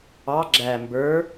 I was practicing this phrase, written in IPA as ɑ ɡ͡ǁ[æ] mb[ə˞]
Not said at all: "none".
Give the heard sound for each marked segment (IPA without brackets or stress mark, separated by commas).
æ, ə˞